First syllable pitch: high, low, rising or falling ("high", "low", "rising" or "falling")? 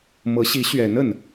rising